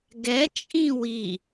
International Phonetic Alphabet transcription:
ɡ ɛ t͡ʃʼ ĩ w i

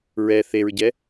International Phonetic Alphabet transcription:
ɹ ɛ θ e ɹ ɟ ɛ

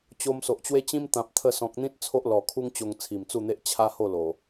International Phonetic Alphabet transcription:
t͡ɕ o˧ m s o˨ ʔ t͡ɕ w e˦ t͡ɕ ĩ˦ m t̪ ã˨ p̚ t̪ʰ ə˧ s ɔ̃˨ k̚ n̪ ĩ˦ t̚ t͡sʰ o˦ ʔ l ɔ˨˩ kʰ u˦ ŋ t͡ɕ o˧ ŋ t͡sʰ i˨˩ m t͡s u˥˧ n̪ e˦ ʔ t͡ɕʰ a˦ h o˥˧ l o˨˩

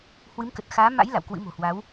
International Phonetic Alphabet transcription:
h w ɨ˨˦ m k ə˨˩ t̚ x aː˨˦ m a̰˧˥ j l a̰˧˨ w k w ɨ̰˧˥ m o̤˨˩ h w a˨˦ w

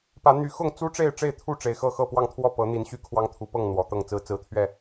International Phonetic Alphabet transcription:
p ä˨˦ n̪ y˨˦ x ʊ˥˨ ŋ t͡s u˦ ʈ͡ʂ e˥˨ ɪ̯ ʈ͡ʂ e˥˨ ɪ̯ t̪ʰ u˥˨ ʈ͡ʂ e˨˩ ɪ̯ x ɤ˥˨ x ɤ˥˨ p w ɑ˥˨ ŋ t̪ʰ w ɔ˥˨ p ɤ˨˦ n̪ i˨˦ n ɕ y˦ kʰ w ɑ˦ ŋ t̪ʰ u˨˦ p ɤ˥˨ ŋ n̪ w ɔ˨˩ t̪ ɤ˥˨ ŋ t͡s ɹ̩˨˦ t͡s ɹ̩˨˦ t̪ʰ ɥ ɛ˥˨

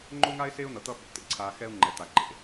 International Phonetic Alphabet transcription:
ŋ͡ǃ o˦ ŋ a˦ ɪ̯ s e˦ ʊ̯ n̪ ʌ˨ t̪ ʌ˦ ɓ o̰˨ t̪ ḛ˦ ǀʰ a˨ x ɛ˦ ʊ̯ ŋ͡ǃ ɛ˨ t̪ a˨ ǃ ḛ˦

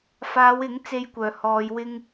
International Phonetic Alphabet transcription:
f aː˨˧ w ɪ˨˥ ŋ t͡s e˧ j kʷ œː˨˩ h ɔː˨˧ j w ɪ˥ ŋ

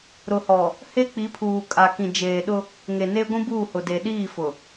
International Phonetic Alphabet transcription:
ɾ ʊ˨ h ɔ˨ | h e˦ k͡p i˨˦ pʰ uː˨ kʼ a˨ k ĩ˨ d͡ʒ eː˨ ɗ ʊ˦ | ŋ e˨ n e˦ ɡʷ ĩ˦ b uː˦˨ h ʊ˨ d e˨ ɗ iː˦˨ f ʊ˨

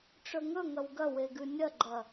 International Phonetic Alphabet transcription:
ʈ͡ʂ ɵ ŋ ɵ ŋ ɐ w ɡ ɐ w e ɡ ʉ nʲ ɐ ɡ͡ǃ ɐ

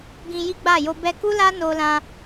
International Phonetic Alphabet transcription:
ɡ ĩ˧ j i˦ ɡ͡b a˦˨ j o˧ b ɛ˧ k u˦ l a˦ n o˧ l ã˧

